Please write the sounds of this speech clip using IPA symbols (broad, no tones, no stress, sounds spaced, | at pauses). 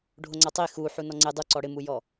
ɖʱ o ŋ͡ǀ a tˤ i x u ħ u n ɔ ŋ͡ǀ e dˤ u ǀ ɔ ɽ ɪ m u j ɔ